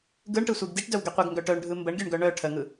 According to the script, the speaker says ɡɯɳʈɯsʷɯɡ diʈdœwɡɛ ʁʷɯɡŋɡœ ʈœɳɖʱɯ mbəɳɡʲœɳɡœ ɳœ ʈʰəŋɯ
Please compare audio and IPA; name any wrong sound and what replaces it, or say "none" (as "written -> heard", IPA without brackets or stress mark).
ʁʷ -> qʷ